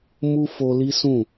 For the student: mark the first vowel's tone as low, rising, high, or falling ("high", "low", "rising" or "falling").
high